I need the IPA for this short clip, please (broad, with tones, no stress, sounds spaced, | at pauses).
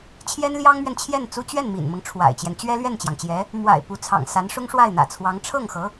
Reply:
t͡ɕʰ j ɛ˥ n l j ɑ˥ ŋ m ɥ ɛ˨ n t͡ɕʰ j ɛ˥˩ n t͡s u˥ t͡ɕ ɥ ɛ˥˩ n m ḭ˨˩ n m ɤ˦ ŋ ʈ͡ʂʰ w a̰˨˩ ɪ̯ t͡ɕ j ɛ˦ n t͡ɕ ɥ ɛ˥ l ɥ ɛ˥˩ n t͡ɕ j ɑ˩ ŋ t͡ɕ j ɛ˧˥ | m w a̰˨˩ ɪ̯ p u˧˥ t͡sʰ ɑ̰˨˩ ŋ s a˧˥ n ʂ ʊ˥ ŋ ʂ w a˥˩ ɪ̯ n̪ ä̰˨˩ t͡sʰ w ɑ˧˥ ŋ ʈ͡ʂʰ ɤ˥˩ ŋ x ɤ˧˥